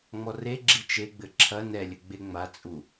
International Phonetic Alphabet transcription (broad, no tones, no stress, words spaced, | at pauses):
ŋ͡mɔreɡ͡ǁi t͡ʃeɡ͡bɘ ǁʰɐ nɛlʲɘ ɡ͡beŋ͡mat͡sʼu